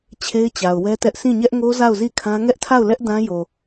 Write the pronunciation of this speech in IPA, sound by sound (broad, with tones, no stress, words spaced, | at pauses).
t͡ɕʰe˦ɪ̯t͡ɕa˨ʊ̯wɛ˦tɛ˦ʔ sĩ˦˨ɲɛ˦ʔŋo˦ za˦˨ʊ̯zi˦˨kʰã˦ ŋɛ˦ʔtʰa˦˨ʊ̯lɛ˦ʔ dã˦jo˨